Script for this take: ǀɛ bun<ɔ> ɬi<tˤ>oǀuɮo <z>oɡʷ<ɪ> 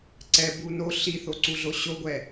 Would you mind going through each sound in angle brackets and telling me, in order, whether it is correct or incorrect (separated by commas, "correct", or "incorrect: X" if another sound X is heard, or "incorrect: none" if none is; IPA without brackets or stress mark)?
incorrect: o, incorrect: θ, incorrect: ɕ, incorrect: ɛ